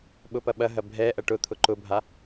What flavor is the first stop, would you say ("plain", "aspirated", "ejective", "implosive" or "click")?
implosive